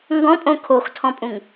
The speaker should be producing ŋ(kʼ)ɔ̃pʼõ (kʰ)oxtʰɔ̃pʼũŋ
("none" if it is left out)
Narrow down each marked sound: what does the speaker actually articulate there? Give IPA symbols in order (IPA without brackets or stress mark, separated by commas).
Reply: ɡ, kʰ